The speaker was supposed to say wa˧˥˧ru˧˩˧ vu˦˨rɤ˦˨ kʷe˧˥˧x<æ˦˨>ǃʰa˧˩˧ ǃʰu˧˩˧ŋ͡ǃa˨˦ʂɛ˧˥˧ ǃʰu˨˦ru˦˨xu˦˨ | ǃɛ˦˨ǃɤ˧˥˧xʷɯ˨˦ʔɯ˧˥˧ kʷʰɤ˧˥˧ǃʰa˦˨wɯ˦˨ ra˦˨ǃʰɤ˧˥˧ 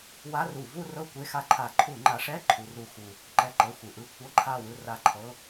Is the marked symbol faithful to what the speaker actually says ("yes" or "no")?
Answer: no